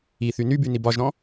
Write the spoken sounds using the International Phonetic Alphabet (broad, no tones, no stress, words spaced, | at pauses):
iθy nyby nibɒʒɾɔ̃